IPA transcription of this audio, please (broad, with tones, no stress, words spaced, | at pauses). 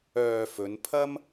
œː˨ fɵ˨˧n pʰɐ˥m